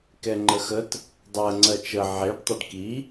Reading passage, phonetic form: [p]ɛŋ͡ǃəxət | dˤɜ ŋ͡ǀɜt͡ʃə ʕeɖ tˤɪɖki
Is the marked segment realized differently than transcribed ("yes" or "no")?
yes